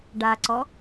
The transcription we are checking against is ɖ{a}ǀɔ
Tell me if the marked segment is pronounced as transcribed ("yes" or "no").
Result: yes